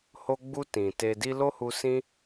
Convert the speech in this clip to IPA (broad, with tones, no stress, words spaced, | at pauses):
ho˧ɡ͡bu˧ tĩ˨te˧ di˧ lo˦hu˧ sĩ˦